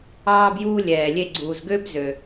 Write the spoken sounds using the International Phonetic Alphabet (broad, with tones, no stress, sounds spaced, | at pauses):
ɑː˧ b j uː˧ lʲ ɛː˩ lʲ e˧ ɡ͡ǀ uː˩ z ɡ ø˥ b z ø˩